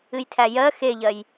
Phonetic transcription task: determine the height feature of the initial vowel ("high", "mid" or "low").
high